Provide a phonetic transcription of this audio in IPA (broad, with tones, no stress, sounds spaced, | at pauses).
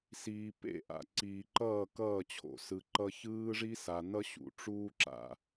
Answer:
s iː˨ p ḛ˦˨ ʔ a̰˨ ǀ iː˨ ǃ ʌː˦˨ k ʌː˦˨ t͡ɕʰ o̰˨ s ɯ˨ ǃ ʌ˦ ç ɯː˦ ʐ i˦ s a˨ n ʌ˦ ɕ ṵ˨ ʈ͡ʂ uː˦ ǁ a̰˨